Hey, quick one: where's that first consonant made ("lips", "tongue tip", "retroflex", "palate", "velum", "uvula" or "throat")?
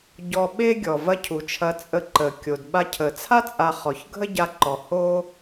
palate